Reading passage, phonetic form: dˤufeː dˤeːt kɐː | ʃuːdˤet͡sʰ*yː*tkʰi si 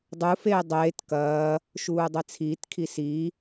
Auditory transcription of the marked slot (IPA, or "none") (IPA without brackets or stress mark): iː